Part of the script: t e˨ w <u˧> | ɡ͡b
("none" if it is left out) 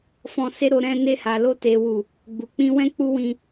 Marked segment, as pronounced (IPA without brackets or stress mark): u˨